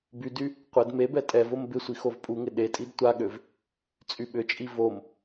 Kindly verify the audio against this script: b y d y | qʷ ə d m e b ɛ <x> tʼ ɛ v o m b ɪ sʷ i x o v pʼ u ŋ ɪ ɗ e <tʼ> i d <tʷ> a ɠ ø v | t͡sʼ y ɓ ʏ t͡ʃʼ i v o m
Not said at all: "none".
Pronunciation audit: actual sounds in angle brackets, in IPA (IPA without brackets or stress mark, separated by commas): none, tʼ, tʷ